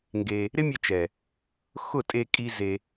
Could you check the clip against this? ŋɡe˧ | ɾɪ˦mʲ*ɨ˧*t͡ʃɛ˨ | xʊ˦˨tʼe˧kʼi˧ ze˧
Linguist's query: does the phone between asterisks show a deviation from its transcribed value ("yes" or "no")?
yes